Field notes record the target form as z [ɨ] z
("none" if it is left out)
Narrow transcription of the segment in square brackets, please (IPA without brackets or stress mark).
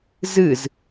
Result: ɨ